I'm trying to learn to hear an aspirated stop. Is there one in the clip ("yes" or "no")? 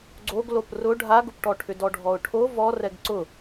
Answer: yes